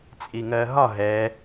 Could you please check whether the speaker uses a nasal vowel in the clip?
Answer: no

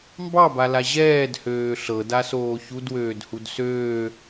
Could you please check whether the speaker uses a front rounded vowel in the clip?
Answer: yes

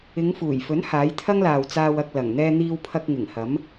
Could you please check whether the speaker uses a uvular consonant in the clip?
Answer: no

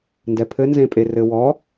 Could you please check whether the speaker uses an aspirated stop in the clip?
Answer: yes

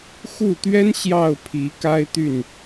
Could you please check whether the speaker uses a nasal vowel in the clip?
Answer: no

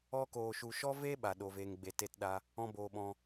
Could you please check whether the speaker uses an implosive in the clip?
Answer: yes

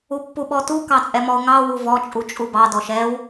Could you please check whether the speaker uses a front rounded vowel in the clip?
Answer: no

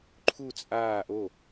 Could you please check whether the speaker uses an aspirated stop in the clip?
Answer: yes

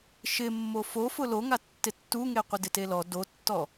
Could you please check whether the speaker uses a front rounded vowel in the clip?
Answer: no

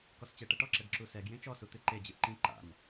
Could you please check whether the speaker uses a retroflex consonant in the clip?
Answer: yes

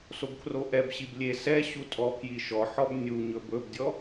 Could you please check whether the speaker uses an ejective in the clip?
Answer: yes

